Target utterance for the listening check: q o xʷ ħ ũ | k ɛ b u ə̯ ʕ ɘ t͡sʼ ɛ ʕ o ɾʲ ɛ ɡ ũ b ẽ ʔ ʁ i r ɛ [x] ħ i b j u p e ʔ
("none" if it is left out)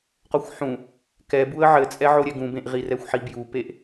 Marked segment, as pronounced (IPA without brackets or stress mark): xʷ